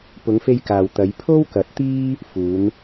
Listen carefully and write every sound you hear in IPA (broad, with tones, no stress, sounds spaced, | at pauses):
p ʊ˨˧ ŋ f e˧ j k aː˨ w t̪ ɐ˨˧ j pʰ o˥ w k ɐ˨˥ t̚ t̪ iː˥ | f uː˨˧ n